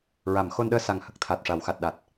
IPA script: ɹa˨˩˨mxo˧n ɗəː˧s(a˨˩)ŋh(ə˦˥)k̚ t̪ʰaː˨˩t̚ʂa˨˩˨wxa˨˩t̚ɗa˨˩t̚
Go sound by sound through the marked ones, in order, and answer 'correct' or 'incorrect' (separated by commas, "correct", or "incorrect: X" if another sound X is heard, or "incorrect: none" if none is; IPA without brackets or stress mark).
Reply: correct, incorrect: ə˨˩